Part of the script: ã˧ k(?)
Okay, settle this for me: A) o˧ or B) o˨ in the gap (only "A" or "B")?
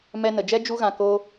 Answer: A